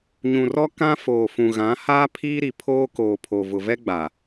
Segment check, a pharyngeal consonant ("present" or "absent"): absent